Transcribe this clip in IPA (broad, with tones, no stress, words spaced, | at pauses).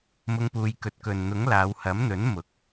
mʊ˧ŋpuː˨˧j kɵ˨t̚kɵ˨nn̪ʊ˨˥ŋ laː˨˧whɐ˨˥mn̪ɵ˨˥n mʊ˨˥k̚